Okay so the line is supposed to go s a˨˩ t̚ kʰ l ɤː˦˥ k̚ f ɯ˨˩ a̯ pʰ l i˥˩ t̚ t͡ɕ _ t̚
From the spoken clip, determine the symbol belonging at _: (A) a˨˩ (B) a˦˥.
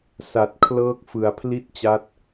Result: B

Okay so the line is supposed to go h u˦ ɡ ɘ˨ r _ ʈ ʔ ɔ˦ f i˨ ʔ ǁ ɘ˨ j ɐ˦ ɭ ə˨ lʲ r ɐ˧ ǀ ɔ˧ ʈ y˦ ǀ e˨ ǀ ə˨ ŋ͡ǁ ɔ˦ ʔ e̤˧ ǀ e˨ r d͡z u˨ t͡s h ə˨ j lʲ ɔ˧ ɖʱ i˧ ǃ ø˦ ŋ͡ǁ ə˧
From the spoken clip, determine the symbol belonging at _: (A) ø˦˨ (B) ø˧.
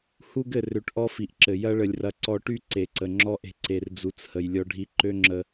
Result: B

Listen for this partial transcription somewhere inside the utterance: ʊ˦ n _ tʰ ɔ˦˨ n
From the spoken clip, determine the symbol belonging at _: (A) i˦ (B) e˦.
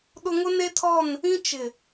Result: B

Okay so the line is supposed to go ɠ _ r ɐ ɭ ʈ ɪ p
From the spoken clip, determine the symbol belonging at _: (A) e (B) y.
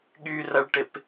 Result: B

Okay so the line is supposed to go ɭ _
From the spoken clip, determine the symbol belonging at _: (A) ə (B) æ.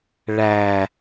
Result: B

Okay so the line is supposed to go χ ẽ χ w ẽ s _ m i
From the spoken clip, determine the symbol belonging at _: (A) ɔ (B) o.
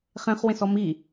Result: A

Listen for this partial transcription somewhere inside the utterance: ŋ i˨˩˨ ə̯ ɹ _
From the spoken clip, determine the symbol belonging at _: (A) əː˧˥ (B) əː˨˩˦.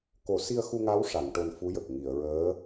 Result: A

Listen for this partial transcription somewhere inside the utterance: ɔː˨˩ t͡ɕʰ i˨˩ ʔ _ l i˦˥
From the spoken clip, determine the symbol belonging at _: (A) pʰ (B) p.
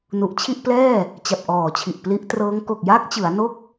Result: B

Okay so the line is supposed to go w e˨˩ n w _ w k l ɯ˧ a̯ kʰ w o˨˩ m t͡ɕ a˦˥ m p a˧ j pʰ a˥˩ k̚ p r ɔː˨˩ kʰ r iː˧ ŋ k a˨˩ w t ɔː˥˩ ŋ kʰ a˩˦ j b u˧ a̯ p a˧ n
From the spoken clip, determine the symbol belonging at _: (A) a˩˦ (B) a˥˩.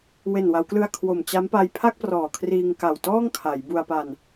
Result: A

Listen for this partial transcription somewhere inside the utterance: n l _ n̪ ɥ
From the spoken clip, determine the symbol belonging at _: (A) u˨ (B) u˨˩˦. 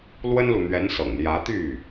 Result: A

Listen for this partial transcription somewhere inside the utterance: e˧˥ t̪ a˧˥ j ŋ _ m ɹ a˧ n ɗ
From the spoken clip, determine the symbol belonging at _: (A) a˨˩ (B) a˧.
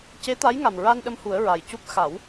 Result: A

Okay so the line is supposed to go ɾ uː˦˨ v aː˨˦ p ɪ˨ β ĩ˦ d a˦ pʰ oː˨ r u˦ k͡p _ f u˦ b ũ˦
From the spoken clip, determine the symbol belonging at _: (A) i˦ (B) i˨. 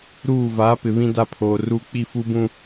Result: A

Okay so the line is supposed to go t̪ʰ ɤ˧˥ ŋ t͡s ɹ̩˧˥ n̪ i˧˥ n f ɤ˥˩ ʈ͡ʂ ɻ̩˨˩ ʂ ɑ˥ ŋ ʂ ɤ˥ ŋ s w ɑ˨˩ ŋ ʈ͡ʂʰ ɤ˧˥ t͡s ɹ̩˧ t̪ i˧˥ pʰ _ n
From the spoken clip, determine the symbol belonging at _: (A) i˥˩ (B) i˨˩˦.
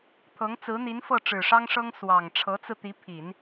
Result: B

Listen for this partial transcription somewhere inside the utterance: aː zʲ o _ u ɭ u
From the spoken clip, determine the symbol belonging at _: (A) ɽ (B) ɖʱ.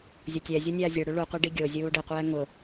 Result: A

